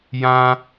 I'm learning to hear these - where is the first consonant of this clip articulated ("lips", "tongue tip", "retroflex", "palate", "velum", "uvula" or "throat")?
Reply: palate